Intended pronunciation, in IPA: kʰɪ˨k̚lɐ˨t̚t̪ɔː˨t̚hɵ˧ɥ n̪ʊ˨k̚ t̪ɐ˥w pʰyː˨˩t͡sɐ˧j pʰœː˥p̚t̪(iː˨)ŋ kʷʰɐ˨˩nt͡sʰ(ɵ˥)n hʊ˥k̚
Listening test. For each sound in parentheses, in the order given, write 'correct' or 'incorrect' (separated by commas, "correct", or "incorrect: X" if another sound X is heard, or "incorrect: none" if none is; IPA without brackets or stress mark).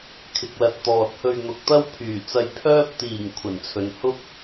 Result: incorrect: iː˨˩, incorrect: ɵ˨